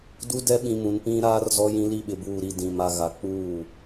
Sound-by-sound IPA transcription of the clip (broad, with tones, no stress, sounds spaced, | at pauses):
d u˦ d ɛ˦ ɓ ĩ˨ m ũ˨ n p ĩ˦ ɾ aː˦ r z ɔ˦ j ĩ˦ l i˦˨ ɓ ɪ˨ b uː˨ ɾ i˨ d ĩ˨ m a˨ ɣ a˨ k͡p uː˦˨